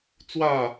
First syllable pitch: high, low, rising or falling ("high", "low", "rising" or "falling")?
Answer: falling